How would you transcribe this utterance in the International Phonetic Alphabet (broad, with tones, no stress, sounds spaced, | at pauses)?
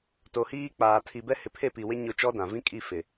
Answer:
t o˨ h iː˦ k͡p aː˨ tʰ i˨ b ɛ˦ h ɪ˨ pʰ e˦˨ p i˨ w ɪ˦ ɲ ʊ˦˨ t͡ʃ ɔ˦ d ã˨ v ĩ˦ kʼ i˦˨ f ɪ˨